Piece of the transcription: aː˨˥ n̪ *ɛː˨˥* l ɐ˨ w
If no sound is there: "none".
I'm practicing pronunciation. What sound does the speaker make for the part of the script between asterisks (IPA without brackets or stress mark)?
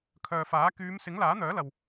œː˨˥